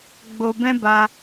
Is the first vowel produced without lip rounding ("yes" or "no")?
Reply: no